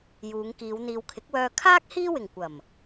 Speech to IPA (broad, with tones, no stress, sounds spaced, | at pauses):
j uː˨˧ ŋ k iː˨˧ w n̪ iː˨ w kʰ ɪ˨˥ k̚ w œː˧ kʰ aː˥ k̚ h iː˥ w ɪ˨˩ ŋ kʷ ɐ˨˩ m